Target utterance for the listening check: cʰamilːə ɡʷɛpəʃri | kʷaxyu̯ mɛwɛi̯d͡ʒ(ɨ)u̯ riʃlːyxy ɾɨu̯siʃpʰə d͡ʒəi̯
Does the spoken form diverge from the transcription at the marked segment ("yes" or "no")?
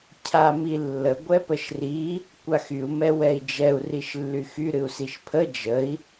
yes